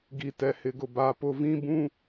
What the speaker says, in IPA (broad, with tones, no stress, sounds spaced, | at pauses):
ɡ i˨ t ɛ˨ h ɪ˨ ɡ ʊ˨ b a˨ p ʊ˨ v ĩ˦ b ũ˦